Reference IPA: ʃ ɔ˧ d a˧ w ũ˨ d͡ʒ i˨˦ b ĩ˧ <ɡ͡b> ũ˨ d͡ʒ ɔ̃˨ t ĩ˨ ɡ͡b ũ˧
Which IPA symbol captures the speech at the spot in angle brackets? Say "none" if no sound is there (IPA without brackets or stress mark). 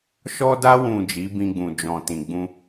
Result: ɡ͡b